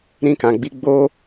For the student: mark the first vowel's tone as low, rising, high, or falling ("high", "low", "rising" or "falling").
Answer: high